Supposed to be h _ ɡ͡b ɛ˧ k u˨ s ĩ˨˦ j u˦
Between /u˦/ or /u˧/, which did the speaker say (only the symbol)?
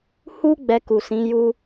u˦